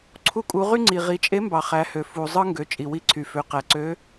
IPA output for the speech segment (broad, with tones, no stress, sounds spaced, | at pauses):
ǀʰ u˧ kʼ u˩˧ ʁ y˥ ŋ͡ǀ i˩ ʁ i˩˧ t͡ʃʼ e˧˥ m b ɑ˩ χ æ˩˧ h ø˩ f u˩ zˤ ɯ˥ ŋ ɡ ø˩˧ t͡ʃʼ i˩ w i˧˥ ǀʰ y˩ f ø˩˧ q æ˩ ǀ ø˧˥